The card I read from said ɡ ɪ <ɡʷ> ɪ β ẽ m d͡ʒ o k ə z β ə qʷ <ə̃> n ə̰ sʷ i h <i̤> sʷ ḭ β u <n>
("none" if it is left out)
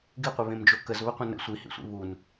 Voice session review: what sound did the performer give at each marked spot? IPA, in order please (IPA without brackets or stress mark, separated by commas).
qʷ, ə̃, ḭ, n